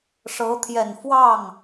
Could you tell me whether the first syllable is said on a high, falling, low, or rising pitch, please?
rising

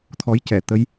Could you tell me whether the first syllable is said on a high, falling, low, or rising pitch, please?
rising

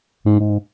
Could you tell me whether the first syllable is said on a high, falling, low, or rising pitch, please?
low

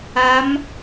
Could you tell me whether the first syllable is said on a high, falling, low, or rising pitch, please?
rising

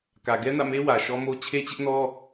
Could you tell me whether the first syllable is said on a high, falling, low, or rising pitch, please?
low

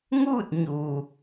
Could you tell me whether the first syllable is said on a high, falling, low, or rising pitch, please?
falling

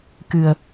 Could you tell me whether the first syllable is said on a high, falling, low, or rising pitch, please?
low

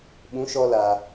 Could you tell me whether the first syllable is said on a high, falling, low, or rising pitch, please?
rising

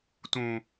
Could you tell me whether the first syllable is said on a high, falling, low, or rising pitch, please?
low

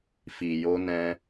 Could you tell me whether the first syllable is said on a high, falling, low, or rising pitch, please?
low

